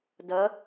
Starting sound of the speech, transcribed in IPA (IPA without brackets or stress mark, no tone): d